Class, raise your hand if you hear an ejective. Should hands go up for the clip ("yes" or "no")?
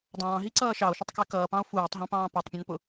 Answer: no